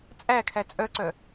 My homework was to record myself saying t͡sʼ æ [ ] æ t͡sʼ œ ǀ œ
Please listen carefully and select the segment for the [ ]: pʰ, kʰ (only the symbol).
kʰ